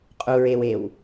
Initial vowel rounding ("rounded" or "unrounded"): rounded